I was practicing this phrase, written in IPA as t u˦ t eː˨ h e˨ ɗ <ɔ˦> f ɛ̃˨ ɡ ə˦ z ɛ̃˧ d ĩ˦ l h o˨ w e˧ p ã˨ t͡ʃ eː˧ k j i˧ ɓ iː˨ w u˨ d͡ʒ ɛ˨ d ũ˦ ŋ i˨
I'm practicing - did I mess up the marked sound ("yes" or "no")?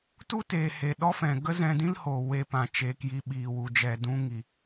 no